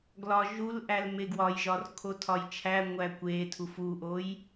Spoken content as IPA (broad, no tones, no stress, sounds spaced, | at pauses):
ɡ l ɒ ʒ u l ʔ æ l m e ɡ w ɒ j ʒ ɒ r kʰ o tʰ ɒ j t͡ʃʰ æ ŋʷ æ kʷ e tʰ u f u ʔ o j